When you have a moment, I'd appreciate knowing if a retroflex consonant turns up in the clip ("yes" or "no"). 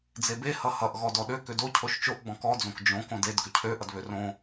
no